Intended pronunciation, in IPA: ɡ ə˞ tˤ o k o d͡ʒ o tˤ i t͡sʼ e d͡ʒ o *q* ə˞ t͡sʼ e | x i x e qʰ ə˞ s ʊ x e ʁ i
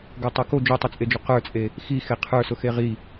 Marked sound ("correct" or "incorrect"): correct